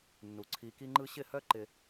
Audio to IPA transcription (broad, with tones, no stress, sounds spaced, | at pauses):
nː u˨ ǀʰ i˧ k i˦ ŋ͡ǃ ɯ˦ ɕ ɪ˦˨ h œ˦ ǃ ɪ˧